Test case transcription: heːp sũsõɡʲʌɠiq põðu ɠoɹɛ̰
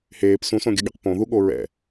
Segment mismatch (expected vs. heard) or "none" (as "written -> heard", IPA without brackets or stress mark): none